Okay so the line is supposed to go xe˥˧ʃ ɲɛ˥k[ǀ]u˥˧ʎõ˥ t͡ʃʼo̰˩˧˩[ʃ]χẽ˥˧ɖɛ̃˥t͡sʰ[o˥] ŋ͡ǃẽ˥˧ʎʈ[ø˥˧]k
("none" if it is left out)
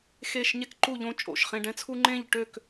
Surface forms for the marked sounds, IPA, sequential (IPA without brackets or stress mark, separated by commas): ǃ, ʃ, u˥, ø˥˧